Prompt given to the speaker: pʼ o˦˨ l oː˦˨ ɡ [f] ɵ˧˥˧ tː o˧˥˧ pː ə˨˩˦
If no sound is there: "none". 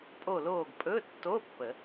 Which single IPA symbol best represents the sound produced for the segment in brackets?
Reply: pʼ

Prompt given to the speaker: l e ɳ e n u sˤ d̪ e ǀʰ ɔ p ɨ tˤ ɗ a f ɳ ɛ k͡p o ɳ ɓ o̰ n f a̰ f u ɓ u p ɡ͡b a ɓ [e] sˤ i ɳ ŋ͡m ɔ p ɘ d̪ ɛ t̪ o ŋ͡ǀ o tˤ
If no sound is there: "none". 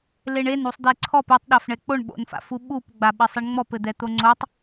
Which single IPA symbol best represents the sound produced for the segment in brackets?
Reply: ɘ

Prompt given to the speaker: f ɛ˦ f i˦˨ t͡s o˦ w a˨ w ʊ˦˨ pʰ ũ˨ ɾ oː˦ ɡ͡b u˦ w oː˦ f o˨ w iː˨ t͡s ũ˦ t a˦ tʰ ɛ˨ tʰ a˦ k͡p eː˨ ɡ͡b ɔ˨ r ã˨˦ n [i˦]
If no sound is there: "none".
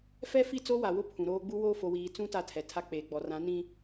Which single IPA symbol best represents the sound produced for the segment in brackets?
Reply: ĩ˦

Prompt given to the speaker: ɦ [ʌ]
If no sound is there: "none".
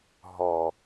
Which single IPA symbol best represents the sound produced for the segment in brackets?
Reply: ɔ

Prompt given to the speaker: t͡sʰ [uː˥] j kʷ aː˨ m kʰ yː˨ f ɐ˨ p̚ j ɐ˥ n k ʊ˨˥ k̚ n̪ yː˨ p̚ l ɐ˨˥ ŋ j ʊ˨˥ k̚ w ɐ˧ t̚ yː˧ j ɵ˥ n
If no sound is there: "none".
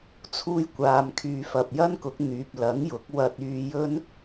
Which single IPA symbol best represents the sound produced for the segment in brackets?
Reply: uː˧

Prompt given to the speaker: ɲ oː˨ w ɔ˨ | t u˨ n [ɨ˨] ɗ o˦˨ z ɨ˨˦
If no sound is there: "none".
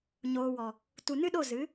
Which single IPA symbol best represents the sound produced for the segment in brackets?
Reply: ɨ˦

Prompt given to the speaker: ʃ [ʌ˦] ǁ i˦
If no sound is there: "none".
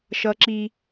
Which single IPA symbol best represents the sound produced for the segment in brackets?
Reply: ʌ˦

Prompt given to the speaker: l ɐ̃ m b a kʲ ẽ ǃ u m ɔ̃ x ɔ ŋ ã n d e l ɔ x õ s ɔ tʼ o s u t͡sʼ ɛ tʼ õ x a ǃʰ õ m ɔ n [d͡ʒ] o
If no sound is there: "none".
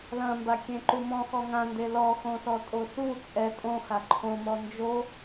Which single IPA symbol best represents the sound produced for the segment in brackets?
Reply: d͡ʒ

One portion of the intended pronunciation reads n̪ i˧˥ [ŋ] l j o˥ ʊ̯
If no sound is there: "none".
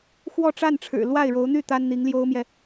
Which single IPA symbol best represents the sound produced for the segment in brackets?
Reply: ŋ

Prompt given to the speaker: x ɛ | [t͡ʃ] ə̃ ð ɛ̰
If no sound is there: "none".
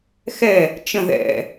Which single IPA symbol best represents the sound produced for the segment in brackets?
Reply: t͡ʃ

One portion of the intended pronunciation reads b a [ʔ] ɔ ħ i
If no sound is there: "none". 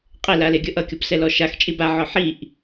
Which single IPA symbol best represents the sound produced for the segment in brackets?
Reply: ʕ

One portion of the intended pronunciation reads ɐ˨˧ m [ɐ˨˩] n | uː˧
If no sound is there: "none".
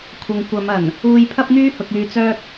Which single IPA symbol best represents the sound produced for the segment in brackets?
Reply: ɐ˨˩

